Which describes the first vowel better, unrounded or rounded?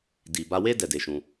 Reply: unrounded